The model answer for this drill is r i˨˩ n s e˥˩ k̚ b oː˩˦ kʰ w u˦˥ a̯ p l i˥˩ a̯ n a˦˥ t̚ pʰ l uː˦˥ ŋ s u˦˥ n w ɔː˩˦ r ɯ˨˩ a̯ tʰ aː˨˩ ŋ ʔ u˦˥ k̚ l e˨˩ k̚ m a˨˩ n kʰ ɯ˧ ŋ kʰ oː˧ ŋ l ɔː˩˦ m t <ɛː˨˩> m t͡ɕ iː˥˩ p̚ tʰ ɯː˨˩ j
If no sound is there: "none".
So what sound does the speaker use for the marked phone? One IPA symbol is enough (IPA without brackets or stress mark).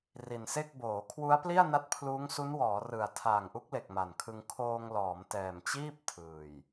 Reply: ɛː˨˩